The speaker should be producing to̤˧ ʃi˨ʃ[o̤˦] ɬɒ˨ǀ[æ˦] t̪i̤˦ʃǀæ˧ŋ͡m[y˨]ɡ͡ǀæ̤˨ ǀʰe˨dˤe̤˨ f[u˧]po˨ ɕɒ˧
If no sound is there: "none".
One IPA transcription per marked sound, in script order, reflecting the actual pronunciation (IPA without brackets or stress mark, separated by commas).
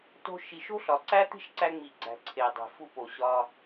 o̤˦, æ˦, i˨, u˧